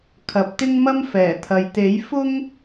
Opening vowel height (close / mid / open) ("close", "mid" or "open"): open